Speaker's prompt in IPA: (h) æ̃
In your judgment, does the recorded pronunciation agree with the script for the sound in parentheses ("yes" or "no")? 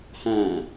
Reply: yes